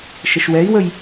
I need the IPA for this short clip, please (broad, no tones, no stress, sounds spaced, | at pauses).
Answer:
ʃ ə ʃ w ɛ i̯ w ə j